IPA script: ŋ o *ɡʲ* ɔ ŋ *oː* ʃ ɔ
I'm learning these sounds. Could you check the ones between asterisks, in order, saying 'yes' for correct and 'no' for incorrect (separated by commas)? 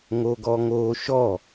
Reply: no, yes